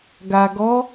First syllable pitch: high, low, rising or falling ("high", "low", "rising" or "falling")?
low